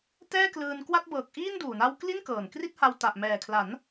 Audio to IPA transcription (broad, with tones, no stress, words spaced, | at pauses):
tɛː˥˩klɯː˧nkwa˥˩t̚ bɤː˨˩k̚ ʔiː˥˩nduː˨˩na˦˥w kli˥˩nkɤː˨˩n kri˥˩t̚ha˧w ta˨˩ʔ mɛː˨˩kʰla˩˦n